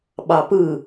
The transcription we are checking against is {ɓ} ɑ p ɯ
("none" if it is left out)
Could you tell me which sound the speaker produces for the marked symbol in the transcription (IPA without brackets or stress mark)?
ɓ